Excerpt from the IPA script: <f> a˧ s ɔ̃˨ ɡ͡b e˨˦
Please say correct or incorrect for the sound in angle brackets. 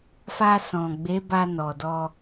correct